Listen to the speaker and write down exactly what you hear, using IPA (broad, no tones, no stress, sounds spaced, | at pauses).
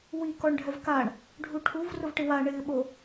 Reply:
w i k ɔ ɳ ɖʱ ɛ v k a ɳ | ɖʱ u ʈʰ u v r ʊ v ʈ ɪ w a ɳ ɪː ɓ o